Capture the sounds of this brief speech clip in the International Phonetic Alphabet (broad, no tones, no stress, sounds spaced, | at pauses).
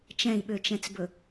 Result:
t͡ʃ ɛ̃ i̯ ɓ ø t͡ʃ ɛ̃ t͡s b ɵ